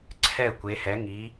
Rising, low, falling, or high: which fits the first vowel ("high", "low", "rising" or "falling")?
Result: falling